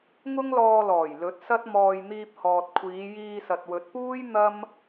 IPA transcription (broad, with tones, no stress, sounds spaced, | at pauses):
ŋ ʊ˥ ŋ l ɔː˧ l ɔː˨˩ j l ɵ˨˥ t̚ s ɐ˥ t̚ m ɔː˧ j n̪ iː˧ p̚ h ɔː˨ t̚ kʷʰ iː˨˧ j iː˧ s ɐ˨ t̚ w ɵ˨˥ t̚ p uː˥ j n̪ ɐ˥ m